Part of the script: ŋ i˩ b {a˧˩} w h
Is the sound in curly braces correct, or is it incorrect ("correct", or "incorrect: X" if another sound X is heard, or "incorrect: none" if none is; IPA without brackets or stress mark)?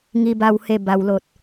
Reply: correct